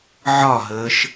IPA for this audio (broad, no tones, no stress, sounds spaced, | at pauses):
ʕ ɒ ɦ əː ʃ